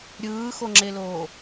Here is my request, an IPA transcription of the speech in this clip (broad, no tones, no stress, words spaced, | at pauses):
ɾʲɯːxoŋ͡ǁeloː